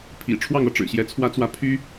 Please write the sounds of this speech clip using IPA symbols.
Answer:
pʰḭ˨˩ ʈ͡ʂʰwɑ˥˧ŋɤ˥˩ʈ͡ʂɻ̩˨˩ɕjɛ˧˥ t͡sʰwä˥t͡swä˥˩ pʰy˥

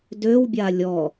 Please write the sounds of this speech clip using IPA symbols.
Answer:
døwbʲa lʲɔ

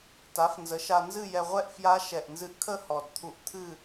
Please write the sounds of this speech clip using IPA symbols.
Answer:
ta˩˥fnzə˩˥ʃa˧ nzɨ˥˧jɛ˧ʁʷɛ˥˧ʔfja˦˥ ʃɛ˨˩ʔnzɨ˧ʔkʰə˥˧ hɔ˨˩dt̪ʰu˧ʔ t̪ʰɨ˥˧

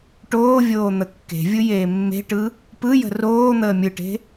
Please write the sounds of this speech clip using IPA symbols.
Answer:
ʈoːvʲoː n̪əkːe̤vʲɯ jeːmːe̤ʈɯ | pɯjə̤ roː n̪əːmʲɯʈe̤

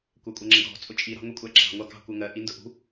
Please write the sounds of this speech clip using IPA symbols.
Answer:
kʷækʷʼɜŋ͡ǁəɡʱɔ̤ t͡sʼʊt͡ʃʼi ɾɑ̤ŋʷikʷʼæǁɑ̤ ŋʷɑkɑ̤ kʷɜŋɜ ʔindʊʔṳ

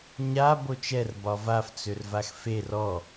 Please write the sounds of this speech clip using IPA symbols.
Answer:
ɲa bot͡ʃɛr bɒvaf t͡sørvaxfer ɔ

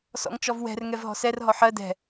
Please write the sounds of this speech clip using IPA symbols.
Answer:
sɔ̰ŋt͡ʃɔvwɛ̤r ŋɛvɦɔ̤sɛr ɦɔħɜ dɛ̤

